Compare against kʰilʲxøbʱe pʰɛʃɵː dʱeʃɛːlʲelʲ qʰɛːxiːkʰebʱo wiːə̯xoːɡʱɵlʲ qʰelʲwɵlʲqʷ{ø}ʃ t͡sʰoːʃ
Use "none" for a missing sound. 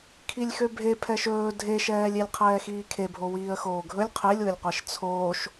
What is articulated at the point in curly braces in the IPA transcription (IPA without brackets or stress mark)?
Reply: ɛ